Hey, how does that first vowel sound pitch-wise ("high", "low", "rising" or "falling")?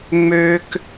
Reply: high